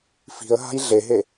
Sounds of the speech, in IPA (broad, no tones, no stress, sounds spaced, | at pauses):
f i̤ ə̯ ɦ a̤ j ɮ e ɦ e